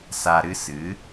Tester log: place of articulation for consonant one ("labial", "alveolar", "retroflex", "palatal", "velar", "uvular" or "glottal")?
alveolar